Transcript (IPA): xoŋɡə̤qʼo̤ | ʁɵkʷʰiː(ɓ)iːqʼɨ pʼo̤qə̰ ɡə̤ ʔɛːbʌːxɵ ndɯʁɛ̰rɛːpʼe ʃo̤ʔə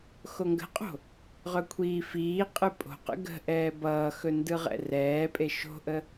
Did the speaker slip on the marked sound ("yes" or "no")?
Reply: yes